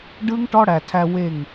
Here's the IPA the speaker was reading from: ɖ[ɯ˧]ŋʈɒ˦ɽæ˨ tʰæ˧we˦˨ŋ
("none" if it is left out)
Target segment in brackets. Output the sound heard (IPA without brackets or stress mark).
ɯ˦